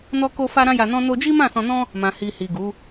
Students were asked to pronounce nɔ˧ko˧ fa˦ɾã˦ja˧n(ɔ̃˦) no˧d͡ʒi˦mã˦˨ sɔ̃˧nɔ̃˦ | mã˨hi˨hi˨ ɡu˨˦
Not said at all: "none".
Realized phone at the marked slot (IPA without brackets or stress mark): ɔ̃˦